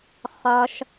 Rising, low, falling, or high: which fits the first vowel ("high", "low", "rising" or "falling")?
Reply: high